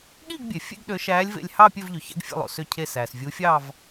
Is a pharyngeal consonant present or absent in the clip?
absent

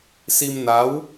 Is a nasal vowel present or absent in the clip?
absent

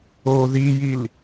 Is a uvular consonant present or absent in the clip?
absent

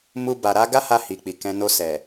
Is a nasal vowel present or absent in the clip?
present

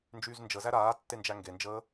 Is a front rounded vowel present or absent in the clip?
present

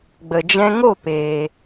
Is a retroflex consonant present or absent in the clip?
absent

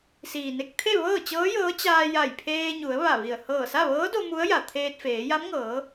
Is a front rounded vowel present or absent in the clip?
absent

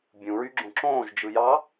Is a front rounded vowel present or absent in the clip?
present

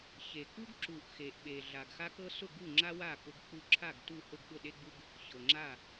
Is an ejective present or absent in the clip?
absent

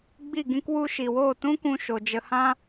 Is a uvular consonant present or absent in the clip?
absent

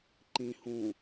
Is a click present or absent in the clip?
present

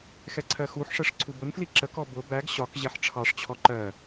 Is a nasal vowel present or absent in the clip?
absent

